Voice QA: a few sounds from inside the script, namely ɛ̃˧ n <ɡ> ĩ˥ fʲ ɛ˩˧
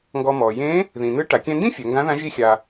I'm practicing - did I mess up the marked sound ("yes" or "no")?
yes